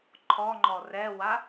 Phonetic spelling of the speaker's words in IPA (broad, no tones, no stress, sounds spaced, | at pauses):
ǃʰ ɔ ŋ͡ǃ ɔ r ɛ w a